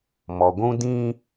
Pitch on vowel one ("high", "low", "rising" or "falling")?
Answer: low